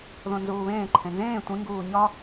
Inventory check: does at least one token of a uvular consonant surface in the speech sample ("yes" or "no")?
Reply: no